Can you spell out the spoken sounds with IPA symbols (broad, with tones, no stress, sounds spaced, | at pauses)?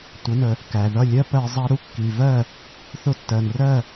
tʷ ə˩˥ n ə˩ | k æ˩ ð ʌ˥˩ lʲ ɜ˥ p ɜ˧ zˤ ɑ˥ ɾ u˥ kː i˩ v ɜ˥˩ | θ ʊ˥˩ tː ɜ˩ n r ɜ˥˩